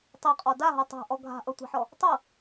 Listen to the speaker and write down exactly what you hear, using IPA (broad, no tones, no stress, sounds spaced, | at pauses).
tˤ ɤ qʼ ɔ d a ɦ ɤ tˤ a̤ ʔ ɔ ɡʱ a̤ ʔ ɤ tʷ a̤ ħ ɔ | tˤ ɤ